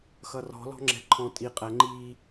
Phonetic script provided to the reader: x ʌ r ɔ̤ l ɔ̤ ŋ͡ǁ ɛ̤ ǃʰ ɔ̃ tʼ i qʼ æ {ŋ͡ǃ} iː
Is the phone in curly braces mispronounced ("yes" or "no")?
no